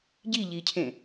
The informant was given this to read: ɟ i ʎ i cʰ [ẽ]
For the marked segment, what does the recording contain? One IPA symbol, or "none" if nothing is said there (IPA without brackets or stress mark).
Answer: ẽ